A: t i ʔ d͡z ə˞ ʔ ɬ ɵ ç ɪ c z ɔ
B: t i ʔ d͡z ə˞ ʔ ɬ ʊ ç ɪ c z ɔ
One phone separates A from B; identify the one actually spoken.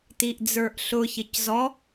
B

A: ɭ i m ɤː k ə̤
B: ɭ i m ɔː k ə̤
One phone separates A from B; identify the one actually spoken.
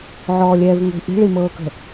A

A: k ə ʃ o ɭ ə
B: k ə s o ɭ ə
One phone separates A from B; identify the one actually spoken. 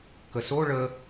B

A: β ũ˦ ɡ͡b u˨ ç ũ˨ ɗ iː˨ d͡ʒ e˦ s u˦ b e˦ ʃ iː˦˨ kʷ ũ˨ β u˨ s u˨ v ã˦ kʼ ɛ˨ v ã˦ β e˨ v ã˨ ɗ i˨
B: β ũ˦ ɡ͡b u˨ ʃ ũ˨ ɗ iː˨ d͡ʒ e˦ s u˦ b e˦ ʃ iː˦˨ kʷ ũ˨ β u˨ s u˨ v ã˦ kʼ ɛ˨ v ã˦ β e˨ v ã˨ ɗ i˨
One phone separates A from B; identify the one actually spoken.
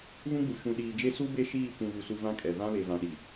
B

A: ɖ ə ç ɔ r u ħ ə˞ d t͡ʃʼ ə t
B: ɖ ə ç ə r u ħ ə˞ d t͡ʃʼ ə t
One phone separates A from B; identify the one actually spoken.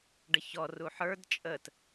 A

